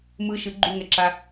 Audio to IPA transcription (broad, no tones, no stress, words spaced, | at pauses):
mɯ ʃɯ ɡ͡ǃuŋɛǁa